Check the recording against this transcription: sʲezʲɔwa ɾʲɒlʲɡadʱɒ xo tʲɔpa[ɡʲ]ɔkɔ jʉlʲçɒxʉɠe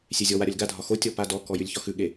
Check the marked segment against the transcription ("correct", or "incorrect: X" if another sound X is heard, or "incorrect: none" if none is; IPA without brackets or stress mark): incorrect: d